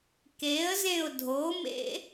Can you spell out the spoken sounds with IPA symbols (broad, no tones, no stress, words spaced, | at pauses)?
keə̯zẽʊ̯ dʱomḛ